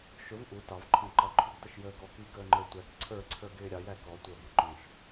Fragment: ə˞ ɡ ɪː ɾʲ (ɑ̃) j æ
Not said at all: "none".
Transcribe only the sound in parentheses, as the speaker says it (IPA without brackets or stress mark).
ɑ